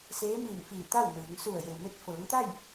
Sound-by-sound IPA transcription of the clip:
seː˧˥ miː˧˩n fiː˧˩t̪a˥˨w nɯː˩˧ŋ su˧˩ə̯je˩wme˧t̚ fɤː˩˧ŋt̪a˥˨j

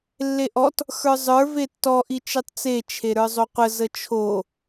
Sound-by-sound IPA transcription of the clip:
lːeʔɔt | xə˞zˤə˞ vetːɔ ʔit͡ʃitˤt͡se t͡ʃʰeɾə˞zˤoqʷə zət͡ʃʰo

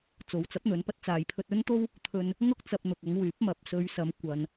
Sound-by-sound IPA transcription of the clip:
t͡so˨˥wt͡sɐ˨˥p̚n̪ɵ˨˧npɐ˧t̚ t͡saː˨jpʰɵ˧t̚ɵ˥nt̪o˥w | t̪ʰɵ˧n | ŋʊ˥k̚t͡sɐ˧p̚n̪ʊ˨k̚ ɐ˨˧ŋwyː˨˥p̚ mɐ˨˥p̚ sɵ˨˧ɥsɐ˨˧m kʷɐ˨n

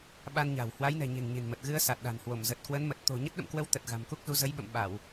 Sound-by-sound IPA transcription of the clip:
ɓa˧nɲa̤˨˩w hwa˨˦jnɛ̤˨˩ ɲe̤˨˩ŋɲe̤˨˩nmə˨˩t̚ ɣɨ˧ə̯sa˨˩t̚ɗa̤˨˩nhwo˧˩m zə˨˩t̚kwə˨˦nmə˨˩t̚t̪o̤˨˩ ɲə˦˥t̚ɗə̰˧˨mkwə˧w t̪ə˨˩t̚ ɣa̤˨˩mku˦˥k̚zu˨˦ zə˨˦jɓə̰˧˨m ɓa˧˩˨w

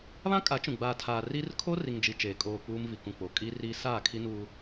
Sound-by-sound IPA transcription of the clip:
βã˦kʼa˨˦ t͡ʃũ˨ ɡ͡baː˨tʰaː˨ ri˦r kʰo˦ri˨ŋ d͡ʒi˨ t͡ʃeː˨ kʼoː˨ k͡puː˦mvi˨kũ˨k͡po˨ kʼi˦ri˦ saː˦˨kʰi˦nu˦

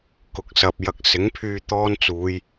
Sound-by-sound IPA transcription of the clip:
kʊ˨˥k̚sɐ˨p̚jɐ˧k̚ sɪ˨˥ŋpʰyː˧ t̪ɔː˥nt͡suː˨˧j

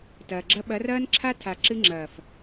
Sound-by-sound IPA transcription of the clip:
tɐː˨ɡ͡ǁɐ˦ ɓɐ˨˦rɐː˦nǁʰa˦tʰa˨ ǁɨ˦ŋ͡ǁɐː˨f

